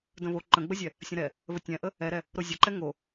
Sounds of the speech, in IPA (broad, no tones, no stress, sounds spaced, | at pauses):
d ə̃ β o ǃ ə̃ ɡ͡b ə zʲ ɛ | sʲ ə̃ ɾ ɛ | β ə tʲ ɛ̃ ʔ ə | ɛ ɾ ɛ | ɾ o zʲ ə ǃ ɛ ŋ o